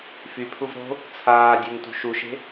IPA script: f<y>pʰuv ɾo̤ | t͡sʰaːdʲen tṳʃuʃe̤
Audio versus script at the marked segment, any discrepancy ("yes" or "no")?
no